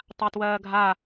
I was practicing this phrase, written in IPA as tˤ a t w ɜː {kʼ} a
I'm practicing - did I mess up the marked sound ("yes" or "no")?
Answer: yes